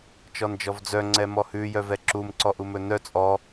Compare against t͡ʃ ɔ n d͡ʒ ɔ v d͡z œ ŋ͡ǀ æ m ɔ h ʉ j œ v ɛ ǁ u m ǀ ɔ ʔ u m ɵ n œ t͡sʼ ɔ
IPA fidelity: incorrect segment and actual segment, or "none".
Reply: æ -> ɛ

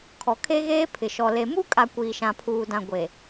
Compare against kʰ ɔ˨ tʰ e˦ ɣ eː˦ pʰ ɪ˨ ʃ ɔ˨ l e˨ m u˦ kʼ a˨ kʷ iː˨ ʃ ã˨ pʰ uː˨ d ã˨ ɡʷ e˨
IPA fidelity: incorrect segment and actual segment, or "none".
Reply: tʰ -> kʰ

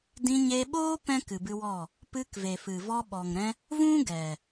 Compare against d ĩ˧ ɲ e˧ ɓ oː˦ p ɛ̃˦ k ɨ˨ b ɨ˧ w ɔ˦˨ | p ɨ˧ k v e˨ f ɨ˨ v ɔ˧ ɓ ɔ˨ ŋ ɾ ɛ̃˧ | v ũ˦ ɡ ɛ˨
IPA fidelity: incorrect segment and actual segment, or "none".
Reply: none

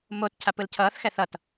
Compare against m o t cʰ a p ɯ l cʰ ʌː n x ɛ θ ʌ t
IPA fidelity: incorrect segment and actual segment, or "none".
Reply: n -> θ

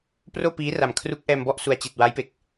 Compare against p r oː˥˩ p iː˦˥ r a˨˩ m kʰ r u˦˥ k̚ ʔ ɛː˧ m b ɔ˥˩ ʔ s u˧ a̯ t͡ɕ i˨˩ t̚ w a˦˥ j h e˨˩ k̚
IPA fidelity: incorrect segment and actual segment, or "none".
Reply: h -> p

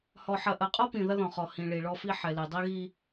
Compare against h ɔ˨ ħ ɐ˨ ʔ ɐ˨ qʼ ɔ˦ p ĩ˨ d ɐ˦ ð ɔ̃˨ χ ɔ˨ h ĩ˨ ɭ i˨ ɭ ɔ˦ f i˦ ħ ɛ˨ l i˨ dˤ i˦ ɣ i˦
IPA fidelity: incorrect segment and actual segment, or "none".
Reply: d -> ð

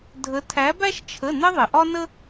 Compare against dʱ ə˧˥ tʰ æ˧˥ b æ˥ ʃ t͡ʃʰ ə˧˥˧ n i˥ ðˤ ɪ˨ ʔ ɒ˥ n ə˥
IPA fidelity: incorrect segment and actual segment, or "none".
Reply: i˥ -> ɪ˥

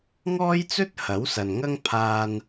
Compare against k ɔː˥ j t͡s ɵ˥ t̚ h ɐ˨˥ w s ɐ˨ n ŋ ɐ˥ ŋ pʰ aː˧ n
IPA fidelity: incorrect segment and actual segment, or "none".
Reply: k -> ŋ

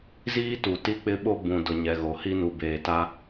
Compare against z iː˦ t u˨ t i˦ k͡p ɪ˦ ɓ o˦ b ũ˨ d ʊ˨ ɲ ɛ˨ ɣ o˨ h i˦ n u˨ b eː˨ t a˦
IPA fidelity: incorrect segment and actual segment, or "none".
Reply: none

